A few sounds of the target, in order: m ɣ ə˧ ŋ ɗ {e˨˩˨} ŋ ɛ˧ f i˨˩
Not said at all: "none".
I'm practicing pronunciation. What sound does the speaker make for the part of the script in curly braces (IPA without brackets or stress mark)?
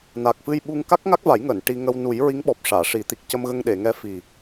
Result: e˨˩˨